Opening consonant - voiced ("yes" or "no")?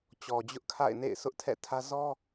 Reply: no